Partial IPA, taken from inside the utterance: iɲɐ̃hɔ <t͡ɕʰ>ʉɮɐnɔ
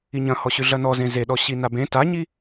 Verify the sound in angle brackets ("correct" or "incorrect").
incorrect